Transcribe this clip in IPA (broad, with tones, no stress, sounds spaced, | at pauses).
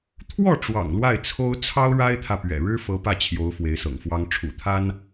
t̪ʰ w ɔ˥˩ ʈ͡ʂ w ɑ̰˨˩ ŋ l w a˥˩ ɪ̯ t͡sʰ o˥ ʊ̯ t͡sʰ ɑ˥ ʊ̯ ɻ a˥ ɪ̯ t̪ʰ ä˨ p ɥ ɛ̰˨˩ ɻ ɻ̩˥ f ɤ˧˥ p ä˥˩ t͡ɕʰ j o˧˥ ʊ̯ f w e˧˥ ɪ̯ s ɤ̰˨˩ ŋ f w ɑ˥ ŋ ʈ͡ʂʰ ṵ˨˩ t̪ʰ a˥ n